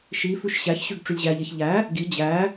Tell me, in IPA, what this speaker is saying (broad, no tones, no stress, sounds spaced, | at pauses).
ʃ i f ʉ ʃ ɕ æ ç ɕ ʉ ɡ ʈ͡ʂ ʉ lʲ ʑ æ ʎ e ç ʎ æ | ɡ i d͡ʑ æ